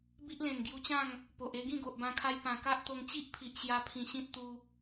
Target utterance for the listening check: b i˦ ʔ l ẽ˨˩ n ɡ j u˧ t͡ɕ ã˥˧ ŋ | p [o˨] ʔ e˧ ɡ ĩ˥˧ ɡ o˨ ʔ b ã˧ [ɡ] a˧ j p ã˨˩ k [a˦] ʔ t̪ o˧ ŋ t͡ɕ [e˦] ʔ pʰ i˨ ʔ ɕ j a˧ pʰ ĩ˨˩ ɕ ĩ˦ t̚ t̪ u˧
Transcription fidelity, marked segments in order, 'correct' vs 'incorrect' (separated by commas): correct, incorrect, correct, incorrect